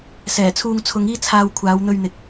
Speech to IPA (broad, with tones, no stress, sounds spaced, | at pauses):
s ɛː˨˩ t͡sʰ uː˧ ŋ t͡sʰ ʊ˨˧ ŋ iː˥ t͡sʰ aː˧ w kʷʰ aː˨˧ w n̪ ɵ˧ ɥ n̪ ɪ˨ k̚